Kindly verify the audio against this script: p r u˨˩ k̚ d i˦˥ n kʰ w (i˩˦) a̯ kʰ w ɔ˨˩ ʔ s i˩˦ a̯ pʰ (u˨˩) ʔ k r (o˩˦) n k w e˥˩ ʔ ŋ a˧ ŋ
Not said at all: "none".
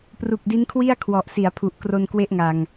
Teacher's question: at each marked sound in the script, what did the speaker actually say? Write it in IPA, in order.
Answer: i˥˩, u˨˩, o˧

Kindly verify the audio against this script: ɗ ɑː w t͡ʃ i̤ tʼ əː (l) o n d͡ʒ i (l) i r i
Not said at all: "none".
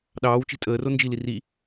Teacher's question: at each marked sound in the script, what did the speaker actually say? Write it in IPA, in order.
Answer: r, l

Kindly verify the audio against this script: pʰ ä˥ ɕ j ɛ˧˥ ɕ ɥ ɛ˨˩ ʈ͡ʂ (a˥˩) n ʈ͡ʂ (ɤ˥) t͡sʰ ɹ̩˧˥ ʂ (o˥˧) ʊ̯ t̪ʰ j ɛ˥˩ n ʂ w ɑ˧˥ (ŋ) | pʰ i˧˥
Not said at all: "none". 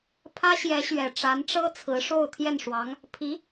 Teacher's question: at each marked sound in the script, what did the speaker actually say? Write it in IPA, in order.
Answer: a˧˥, ɤ˥, o˥˧, ŋ

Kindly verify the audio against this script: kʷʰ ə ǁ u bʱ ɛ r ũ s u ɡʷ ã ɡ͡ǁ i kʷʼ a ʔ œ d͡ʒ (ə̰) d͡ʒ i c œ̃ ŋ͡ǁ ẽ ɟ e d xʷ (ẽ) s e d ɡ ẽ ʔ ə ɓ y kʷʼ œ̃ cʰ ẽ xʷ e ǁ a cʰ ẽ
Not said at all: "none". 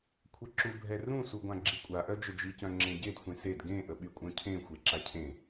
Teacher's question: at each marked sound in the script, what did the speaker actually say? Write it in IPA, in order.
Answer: ə, ẽ

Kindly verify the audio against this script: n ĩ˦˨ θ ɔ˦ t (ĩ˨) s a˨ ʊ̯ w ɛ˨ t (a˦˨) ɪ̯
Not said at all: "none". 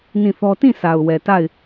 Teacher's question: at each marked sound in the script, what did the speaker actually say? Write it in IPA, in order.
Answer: ĩ˦˨, a˦˨

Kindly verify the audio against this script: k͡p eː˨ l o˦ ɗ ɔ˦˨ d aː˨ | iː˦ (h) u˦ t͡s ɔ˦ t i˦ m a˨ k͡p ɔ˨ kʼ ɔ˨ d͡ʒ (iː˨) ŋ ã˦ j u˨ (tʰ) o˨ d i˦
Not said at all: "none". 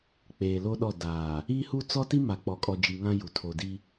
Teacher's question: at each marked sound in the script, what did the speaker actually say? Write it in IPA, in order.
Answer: h, i˨, tʰ

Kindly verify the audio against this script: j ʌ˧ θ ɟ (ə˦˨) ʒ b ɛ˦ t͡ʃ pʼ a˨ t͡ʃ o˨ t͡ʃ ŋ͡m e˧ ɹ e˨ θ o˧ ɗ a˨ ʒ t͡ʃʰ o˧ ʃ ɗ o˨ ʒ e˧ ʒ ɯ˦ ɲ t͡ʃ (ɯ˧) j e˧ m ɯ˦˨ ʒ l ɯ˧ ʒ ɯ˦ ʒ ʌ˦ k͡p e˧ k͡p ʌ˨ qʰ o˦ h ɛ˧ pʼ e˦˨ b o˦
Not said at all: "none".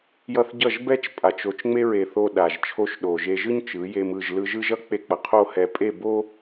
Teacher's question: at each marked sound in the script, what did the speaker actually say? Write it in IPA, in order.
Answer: ʌ˦˨, ɯ˨˦

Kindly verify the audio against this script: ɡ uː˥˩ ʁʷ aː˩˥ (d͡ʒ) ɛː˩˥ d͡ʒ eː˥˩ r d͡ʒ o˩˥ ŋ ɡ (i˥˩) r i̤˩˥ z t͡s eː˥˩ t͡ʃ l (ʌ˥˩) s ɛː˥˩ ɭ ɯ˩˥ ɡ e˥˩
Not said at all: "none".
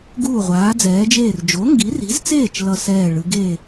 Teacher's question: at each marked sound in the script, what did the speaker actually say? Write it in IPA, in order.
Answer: d͡z, i˩˥, ʌ˥˩

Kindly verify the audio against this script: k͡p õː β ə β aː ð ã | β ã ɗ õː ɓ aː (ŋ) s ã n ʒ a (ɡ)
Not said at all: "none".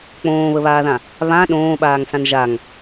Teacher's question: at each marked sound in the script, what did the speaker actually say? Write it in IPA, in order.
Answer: ŋ, ŋ

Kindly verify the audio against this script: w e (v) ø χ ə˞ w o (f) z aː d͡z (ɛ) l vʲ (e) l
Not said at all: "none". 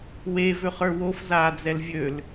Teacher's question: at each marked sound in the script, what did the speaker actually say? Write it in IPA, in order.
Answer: v, f, ɛ, ø

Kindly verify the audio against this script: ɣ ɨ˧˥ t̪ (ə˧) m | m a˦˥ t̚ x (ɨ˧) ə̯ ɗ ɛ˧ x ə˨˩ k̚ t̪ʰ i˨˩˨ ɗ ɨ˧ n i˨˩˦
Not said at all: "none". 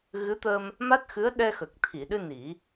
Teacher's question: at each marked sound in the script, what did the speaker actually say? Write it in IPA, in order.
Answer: ə˧, ɨ˧˥

